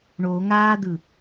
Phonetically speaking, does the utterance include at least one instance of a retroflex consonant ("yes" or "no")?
yes